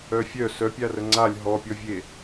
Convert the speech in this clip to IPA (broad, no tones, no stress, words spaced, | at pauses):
œfʲœ sœpʲarə ŋ͡ǀalʲ ɦɔpʲɔvʲe